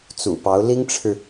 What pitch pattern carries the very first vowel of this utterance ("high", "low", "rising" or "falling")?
low